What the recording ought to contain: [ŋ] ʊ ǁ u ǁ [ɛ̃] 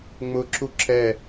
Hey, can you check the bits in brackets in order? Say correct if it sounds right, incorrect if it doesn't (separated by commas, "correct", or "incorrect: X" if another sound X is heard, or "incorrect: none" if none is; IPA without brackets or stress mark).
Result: incorrect: ŋ͡m, incorrect: ɛ